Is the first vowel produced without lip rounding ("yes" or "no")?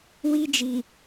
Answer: yes